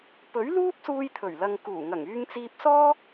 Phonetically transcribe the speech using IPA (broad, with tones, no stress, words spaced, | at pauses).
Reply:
pɵ˨˥ɥluː˥p̚suː˧j t̪ʰɵ˨˩ɥlɐ˨ŋkuː˨˩ŋɐ˨˩ŋ yː˧ŋt͡siː˧p̚sɔː˥